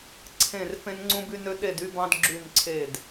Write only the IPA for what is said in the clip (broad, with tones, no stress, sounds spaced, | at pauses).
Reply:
ǀʰ ẽ˧˩ r f ẽ˧ n ŋ͡ǀ ũ˧ b y˧ n ø˧ ɗ e˧˩ d y˧ b ɑ̃˧ d ɡ͡ǁ y˧˩ n ǀʰ e˧˩ d